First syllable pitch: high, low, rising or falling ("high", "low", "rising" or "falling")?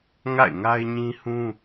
falling